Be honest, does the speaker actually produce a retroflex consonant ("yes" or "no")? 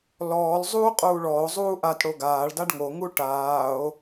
yes